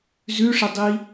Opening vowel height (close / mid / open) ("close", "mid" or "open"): close